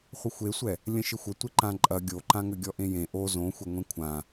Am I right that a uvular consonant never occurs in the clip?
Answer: no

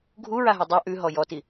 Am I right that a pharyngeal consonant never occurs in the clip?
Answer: yes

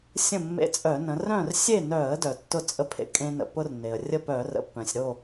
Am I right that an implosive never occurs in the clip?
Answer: yes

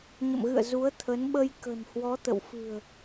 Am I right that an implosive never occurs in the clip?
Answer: no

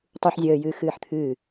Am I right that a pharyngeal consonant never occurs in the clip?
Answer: no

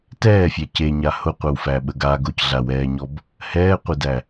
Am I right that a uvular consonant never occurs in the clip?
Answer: no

